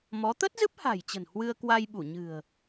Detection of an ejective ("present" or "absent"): absent